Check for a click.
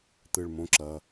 present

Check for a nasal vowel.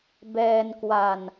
absent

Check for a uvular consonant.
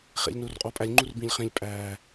present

